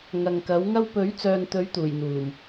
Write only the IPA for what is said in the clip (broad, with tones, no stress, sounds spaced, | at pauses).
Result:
ŋ ɐ˨ ŋ k ɐ˨˥ w ŋ ɐ˥ w p ɵ˨˥ ɥ t͡s œː˨ n t̪ ɵ˨˥ ɥ t̪ uː˨˩ j n̪ uː˨˩ m